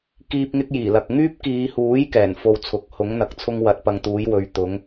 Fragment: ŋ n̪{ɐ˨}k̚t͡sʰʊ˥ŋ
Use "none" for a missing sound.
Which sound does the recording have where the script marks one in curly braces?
ɐ˨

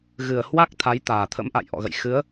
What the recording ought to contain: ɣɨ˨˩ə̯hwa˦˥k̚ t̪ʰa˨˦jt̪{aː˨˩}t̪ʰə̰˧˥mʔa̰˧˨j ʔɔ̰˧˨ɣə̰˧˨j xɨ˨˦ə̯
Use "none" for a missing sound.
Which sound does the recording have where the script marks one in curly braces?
aː˨˩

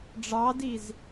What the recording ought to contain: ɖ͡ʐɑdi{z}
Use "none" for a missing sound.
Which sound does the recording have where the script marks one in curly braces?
z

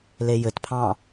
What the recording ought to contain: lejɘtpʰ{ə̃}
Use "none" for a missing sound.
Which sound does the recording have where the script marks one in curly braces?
ɑ̃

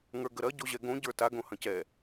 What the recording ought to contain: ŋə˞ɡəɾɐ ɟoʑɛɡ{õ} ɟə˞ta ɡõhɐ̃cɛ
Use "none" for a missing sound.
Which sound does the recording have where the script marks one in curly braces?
õ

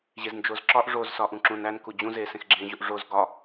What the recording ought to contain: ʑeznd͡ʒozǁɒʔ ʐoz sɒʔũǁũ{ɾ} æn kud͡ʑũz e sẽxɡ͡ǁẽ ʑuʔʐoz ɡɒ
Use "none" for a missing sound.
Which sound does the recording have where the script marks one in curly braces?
n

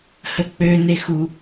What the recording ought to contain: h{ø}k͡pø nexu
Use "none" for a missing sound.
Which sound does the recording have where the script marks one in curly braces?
ə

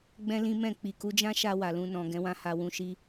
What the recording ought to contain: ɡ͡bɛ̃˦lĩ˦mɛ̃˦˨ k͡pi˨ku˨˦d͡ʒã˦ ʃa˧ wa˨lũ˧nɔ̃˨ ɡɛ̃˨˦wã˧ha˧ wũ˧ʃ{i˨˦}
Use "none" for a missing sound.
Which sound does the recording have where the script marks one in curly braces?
i˦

